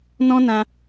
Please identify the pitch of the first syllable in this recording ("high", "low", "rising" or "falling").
high